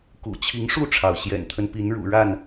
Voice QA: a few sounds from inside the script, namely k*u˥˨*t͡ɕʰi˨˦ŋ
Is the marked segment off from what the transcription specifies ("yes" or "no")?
yes